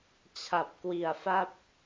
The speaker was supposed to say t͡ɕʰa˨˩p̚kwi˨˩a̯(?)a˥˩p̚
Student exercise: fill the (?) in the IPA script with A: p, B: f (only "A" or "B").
B